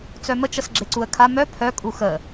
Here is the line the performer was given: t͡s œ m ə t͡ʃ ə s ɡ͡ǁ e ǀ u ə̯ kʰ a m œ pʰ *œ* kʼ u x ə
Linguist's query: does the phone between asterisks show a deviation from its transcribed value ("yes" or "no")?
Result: no